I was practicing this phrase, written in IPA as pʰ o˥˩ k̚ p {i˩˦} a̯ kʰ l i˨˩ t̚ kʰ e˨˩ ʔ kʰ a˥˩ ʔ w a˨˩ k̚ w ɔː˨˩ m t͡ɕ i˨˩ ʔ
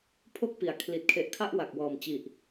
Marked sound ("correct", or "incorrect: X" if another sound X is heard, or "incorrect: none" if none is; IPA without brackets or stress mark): correct